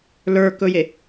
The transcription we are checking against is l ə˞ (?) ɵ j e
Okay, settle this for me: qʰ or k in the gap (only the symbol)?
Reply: k